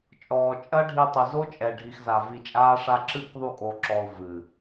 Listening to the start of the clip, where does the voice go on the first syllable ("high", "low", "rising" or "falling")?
low